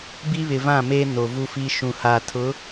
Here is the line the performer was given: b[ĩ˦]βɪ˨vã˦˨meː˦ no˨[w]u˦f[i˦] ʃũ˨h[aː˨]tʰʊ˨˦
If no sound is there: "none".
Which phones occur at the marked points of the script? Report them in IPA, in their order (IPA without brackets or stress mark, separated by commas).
i˦, v, i˦, aː˨